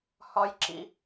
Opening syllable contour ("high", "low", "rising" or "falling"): high